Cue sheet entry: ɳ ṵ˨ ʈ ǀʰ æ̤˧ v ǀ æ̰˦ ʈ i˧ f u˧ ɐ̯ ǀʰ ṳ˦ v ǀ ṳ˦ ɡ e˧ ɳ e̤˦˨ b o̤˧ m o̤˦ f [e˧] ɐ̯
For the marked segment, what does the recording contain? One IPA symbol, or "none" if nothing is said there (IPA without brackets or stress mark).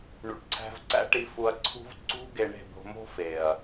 e˨